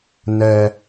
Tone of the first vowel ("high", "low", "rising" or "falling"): high